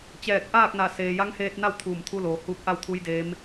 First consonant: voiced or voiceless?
voiceless